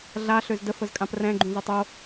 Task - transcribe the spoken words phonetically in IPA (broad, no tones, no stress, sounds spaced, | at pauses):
ɮ a ɬ ø z d ə f ə z kʼ ã p r ɛ̃ ɡ͡ǃ ũ z ə tˤ o